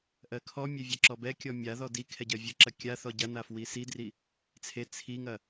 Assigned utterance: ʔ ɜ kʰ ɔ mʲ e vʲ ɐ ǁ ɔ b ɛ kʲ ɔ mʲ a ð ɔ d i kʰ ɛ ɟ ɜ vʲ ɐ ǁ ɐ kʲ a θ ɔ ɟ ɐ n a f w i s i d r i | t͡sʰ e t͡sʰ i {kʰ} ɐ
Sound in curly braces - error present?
yes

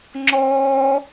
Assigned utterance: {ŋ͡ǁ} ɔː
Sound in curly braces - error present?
no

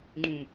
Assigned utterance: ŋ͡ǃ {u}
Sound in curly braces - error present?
yes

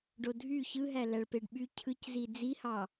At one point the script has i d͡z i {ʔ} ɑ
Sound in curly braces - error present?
yes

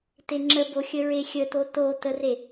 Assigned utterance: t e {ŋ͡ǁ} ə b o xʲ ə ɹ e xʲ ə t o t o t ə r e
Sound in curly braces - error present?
no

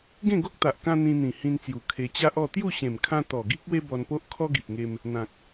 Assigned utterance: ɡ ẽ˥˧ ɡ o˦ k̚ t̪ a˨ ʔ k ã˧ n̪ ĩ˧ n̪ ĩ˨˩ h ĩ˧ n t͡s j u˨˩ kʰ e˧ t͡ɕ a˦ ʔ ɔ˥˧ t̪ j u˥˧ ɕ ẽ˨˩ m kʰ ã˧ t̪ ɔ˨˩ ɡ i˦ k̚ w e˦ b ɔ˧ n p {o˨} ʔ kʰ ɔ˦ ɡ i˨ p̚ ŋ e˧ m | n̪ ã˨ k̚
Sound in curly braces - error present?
yes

